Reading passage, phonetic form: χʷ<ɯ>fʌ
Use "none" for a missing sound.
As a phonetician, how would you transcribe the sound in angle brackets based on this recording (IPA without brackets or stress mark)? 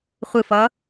ɯ